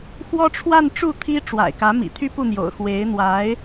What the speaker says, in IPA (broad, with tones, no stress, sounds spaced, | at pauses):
x w ɔ˥ ʈ͡ʂʰ w a˥˧ n ʈ͡ʂ u˥˩ t̪ʰ i˥ ʈ͡ʂ w a̰˨˩ ɪ̯ k ä˧˥ m ḭ˨˩ t̪ʰ y˥ p u˥˩ n̪ j o̰˨˩ ʊ̯ x w e˧˥ ɪ̯ n̪ w a˧˥ ɪ̯